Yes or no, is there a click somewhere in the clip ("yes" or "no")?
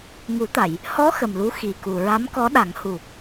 no